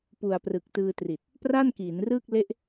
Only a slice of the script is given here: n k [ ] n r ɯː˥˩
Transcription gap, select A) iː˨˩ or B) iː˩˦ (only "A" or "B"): B